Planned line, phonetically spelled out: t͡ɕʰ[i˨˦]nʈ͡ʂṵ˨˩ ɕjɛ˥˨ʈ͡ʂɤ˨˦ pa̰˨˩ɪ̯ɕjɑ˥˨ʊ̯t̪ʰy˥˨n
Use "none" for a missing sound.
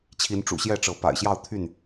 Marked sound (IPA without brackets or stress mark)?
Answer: i˨˦